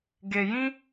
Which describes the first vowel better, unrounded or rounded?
unrounded